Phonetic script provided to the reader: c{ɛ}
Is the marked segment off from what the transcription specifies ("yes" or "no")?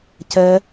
no